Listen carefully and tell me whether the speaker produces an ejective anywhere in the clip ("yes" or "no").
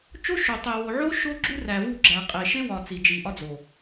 yes